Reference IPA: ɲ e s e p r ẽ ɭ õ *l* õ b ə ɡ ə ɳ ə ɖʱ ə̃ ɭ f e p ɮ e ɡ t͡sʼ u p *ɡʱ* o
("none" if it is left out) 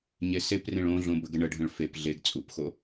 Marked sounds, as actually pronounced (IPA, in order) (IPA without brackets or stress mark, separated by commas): ɮ, x